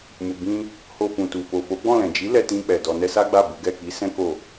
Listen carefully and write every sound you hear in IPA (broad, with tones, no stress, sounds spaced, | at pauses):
m u˨ b ĩ˧ | h o˧ f ũ˨ t u˨ f o˨ f o˨˦ ɡ͡b ɔ̃˦˨ l ɛ̃˨ d͡ʒ i˨˦ l ɛ˧ t ĩ˧ k͡p ɛ˨ d ɔ˧ n ɛ˦ s a˦ ɡ͡b a˦˨ b u˨˦ ɡ ɛ˦˨ k i˨˦ s ɛ̃˦ k o˦˨